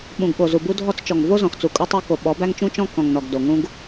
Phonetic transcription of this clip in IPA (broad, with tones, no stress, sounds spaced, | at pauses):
ɓ ũ˨ ɡ ɓ o˨ z u˨ b u˦ dʱ ɔ˦ t͡s t͡ʃ ɔ˨ ŋ v o˦ z ɔ̃˨ x t͡s u˨ kʼ u˦ tˤ o˦ k o˨ ɓ ɔ˨˦ b æ˦ ŋ t͡ʃ ũ˦ t͡ʃ ɔ̃˦ k ɔ̃˨ ŋ n ɔ˨ ɡ d o˨ ŋ ũ˦ ɡ